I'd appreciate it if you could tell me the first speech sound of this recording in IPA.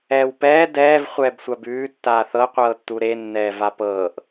ɛː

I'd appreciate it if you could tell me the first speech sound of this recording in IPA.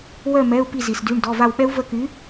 w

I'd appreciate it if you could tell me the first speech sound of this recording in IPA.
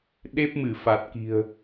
ɗ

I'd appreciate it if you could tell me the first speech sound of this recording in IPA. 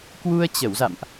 k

